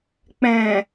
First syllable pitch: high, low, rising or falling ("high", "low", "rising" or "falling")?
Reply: low